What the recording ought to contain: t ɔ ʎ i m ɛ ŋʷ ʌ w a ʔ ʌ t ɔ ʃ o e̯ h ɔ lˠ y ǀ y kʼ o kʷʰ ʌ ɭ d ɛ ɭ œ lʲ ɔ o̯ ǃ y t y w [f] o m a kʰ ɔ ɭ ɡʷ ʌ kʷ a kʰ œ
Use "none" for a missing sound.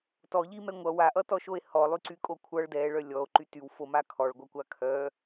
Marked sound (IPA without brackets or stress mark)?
f